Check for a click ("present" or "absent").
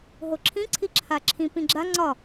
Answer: present